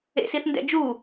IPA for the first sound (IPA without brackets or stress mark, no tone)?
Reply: ḛ